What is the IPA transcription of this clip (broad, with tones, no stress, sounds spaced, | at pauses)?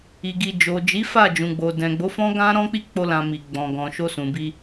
i˨ ɡ i˨ d͡ʒ o˨ d͡ʒ i˨˦ f a˦˨ d͡ʒ ũ˨ ɡ͡b o˨ d ɛ̃˨ ɡ͡b o˨˦ f ɔ̃˦ ɡ ã˦ ɾ ɔ̃˦ k͡p i˦ k͡p o˧ l ã˨ m i˨ ɡ͡b ɔ̃˨ ɡ ɔ̃˨ ʃ o˧ s ũ˨ b i˧